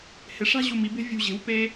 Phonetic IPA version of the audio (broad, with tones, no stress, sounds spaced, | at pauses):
h ɪ˩˧ ʂ a̤˥˧ ʑ u˧˩ m i˩˧ b e̤˥˧ vʲ ṳ˧˩ ʑ e̤˩˧ w p e˧